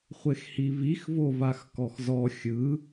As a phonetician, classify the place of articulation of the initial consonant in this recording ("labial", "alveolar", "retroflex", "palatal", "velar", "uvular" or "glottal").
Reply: uvular